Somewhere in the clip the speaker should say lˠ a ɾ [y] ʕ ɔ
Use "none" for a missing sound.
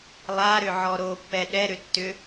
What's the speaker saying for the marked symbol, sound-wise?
ʏ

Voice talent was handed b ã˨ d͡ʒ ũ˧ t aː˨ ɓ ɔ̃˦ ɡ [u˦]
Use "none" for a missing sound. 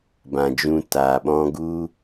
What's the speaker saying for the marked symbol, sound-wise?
u˦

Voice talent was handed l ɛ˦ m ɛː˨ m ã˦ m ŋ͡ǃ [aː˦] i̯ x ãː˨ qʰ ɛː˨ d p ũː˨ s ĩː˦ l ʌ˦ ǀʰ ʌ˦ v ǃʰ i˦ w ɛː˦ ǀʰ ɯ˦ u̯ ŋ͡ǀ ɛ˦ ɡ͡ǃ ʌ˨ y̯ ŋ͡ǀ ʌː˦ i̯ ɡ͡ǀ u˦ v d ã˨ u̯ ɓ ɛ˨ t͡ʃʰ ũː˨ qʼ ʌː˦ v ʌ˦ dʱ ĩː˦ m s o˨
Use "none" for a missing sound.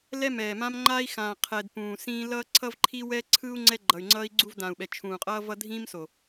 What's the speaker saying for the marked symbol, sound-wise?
aː˦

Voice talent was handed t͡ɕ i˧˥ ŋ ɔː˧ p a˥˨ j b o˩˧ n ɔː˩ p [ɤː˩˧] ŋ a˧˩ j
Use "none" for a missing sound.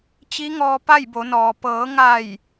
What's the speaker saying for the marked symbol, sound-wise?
ɤː˩˧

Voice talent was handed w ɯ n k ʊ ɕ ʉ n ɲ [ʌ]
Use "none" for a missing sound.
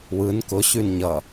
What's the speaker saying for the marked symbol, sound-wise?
ʌ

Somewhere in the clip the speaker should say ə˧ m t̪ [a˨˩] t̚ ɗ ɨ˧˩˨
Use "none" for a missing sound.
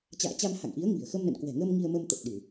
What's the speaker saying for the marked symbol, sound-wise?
ə˨˩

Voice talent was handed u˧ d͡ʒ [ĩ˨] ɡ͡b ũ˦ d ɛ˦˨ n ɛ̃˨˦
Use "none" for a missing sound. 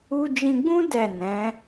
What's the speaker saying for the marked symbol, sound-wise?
ĩ˧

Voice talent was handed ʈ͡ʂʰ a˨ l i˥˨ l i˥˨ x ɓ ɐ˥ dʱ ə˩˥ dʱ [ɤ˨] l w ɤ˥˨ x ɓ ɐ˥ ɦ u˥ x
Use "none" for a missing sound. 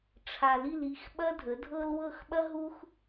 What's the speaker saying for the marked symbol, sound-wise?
ɤ˥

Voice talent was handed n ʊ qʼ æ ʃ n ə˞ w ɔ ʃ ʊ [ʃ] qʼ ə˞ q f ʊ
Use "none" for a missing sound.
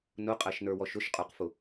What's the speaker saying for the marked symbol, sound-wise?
ʃ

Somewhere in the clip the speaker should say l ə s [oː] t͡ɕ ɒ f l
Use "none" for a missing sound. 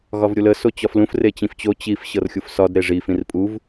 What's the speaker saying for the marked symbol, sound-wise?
o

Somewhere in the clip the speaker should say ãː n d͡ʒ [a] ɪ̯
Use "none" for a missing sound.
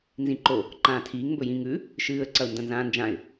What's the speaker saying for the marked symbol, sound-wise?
ã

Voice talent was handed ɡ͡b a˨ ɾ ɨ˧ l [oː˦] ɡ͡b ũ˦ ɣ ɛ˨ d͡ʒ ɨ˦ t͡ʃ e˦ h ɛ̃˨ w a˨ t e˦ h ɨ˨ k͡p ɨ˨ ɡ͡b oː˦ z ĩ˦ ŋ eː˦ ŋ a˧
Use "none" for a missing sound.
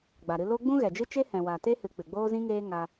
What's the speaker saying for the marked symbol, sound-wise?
o˦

